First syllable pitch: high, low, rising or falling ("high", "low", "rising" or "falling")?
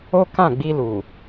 high